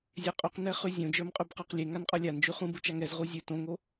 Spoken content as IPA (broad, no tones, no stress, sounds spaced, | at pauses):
zʲ ɛ qʼ u q n ɛ χ ʉ zʲ õ d͡ʒ ə˞ m qʼ ʉ b q ə˞ q lʲ e ŋ a n qʼ ə˞ lʲ a n d͡ʒ ʉ χ ũ b u t͡ʃ a ŋ ɛ z ʁ u zʲ ʉ t õ ŋ o